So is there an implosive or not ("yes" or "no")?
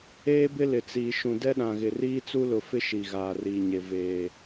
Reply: yes